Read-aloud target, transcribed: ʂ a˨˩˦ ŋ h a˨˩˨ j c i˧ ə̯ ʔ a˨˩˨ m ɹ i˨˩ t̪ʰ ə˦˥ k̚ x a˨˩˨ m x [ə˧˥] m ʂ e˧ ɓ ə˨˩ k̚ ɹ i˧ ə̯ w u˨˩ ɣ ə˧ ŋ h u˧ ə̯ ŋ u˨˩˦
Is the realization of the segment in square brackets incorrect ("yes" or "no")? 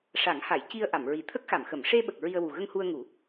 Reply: yes